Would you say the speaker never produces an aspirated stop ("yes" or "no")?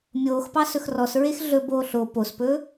yes